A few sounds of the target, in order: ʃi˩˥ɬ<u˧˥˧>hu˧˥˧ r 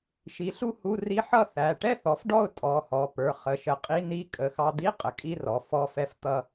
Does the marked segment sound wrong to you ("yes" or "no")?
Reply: yes